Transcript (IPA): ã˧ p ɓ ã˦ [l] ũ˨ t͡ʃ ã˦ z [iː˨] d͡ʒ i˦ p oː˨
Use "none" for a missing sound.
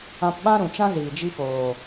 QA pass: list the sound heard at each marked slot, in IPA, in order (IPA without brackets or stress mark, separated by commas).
ɾ, iː˨